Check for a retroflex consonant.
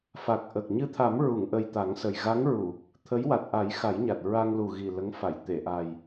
absent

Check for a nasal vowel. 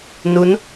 absent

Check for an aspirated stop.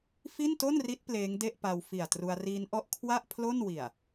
present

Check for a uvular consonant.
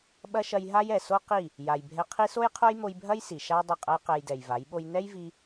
present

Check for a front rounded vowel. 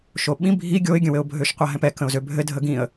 present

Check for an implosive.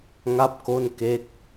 absent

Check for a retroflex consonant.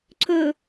absent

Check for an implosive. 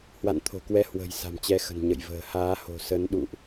present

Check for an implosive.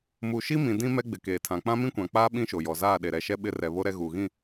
present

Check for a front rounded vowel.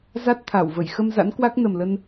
absent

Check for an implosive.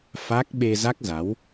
present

